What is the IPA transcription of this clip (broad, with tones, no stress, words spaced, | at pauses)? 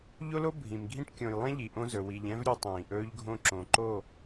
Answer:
ʎo˦lo˦ bʱĩ˨mɡʱĩ˦ʈ kʲõ˨jlˠɛ̃˦ ʎi˨ ʔõ˦zɵ˨ wi˨ʎɛ̃˦v ɾʲɵ˦tˤĩː˨ʔɵː˦ʎɡʱõ˦ ǁõ˨ ǃo˦˨